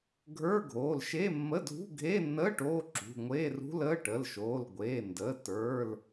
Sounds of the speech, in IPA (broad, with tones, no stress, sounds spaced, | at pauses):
ɡʱ ə˞˧˥˧ ɡʱ oː˩˧˩ l ʃ e˧˥˧ mː ə˧˥˧ dʱ ṳ˧˥˧ ɡʱ eː˧˥˧ nː əː˧˥˧ ʈ oː˧˥˧ ǁ ṳ˩˧˩ ŋʷ eː˧˥˧ r ṳ˧˥˧ l əː˧˥˧ ʈ ə˩˧˩ l ʃ oː˩˧˩ l ɡʷ eː˩˧˩ n d əː˩˧˩ t ə˞˩˧˩ l